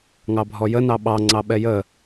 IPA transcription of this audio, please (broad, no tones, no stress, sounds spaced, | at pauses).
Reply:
ŋ ɑ bʱ ɔ j ə n ɑ ɓ ɑ ŋ͡ǀ ɑ ɓ ɛ j ə